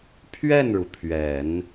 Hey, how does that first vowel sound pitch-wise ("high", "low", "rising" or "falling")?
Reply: falling